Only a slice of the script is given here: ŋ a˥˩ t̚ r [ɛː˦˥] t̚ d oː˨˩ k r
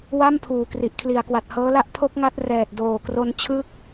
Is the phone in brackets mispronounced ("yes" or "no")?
yes